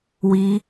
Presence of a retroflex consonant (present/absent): absent